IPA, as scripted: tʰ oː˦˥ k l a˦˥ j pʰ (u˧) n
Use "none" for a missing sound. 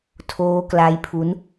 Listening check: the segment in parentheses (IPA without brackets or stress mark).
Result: u˦˥